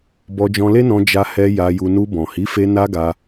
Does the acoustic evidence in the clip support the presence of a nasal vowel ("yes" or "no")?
yes